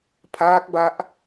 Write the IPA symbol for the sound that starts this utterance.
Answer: pʰ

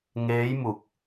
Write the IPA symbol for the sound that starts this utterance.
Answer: ŋ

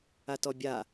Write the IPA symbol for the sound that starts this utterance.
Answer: a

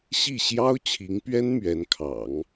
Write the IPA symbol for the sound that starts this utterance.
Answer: ɕ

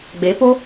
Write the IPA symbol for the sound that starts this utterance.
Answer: ɡ͡b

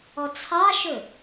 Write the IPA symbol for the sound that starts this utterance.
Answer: ɔ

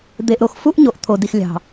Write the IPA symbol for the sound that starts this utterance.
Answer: d̪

